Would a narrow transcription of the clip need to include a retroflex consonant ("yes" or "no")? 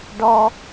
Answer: yes